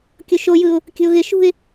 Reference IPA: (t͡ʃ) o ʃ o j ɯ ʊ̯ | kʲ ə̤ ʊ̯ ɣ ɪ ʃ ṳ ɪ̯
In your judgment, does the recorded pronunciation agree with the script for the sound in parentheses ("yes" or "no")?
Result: no